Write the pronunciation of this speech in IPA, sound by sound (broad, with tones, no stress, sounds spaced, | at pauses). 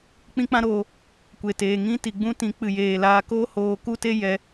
k͡p ĩ˦ k͡p ã˦ ɾ oː˧ | kʷ e˨ t eː˨ ŋ ĩ˦ t i˨ ɡ͡b ũ˦ t ĩ˨˦ k͡p ɨ˨ j eː˨ l aː˧ k oː˦ h oː˧ k u˦ t e˦ j ɛ˧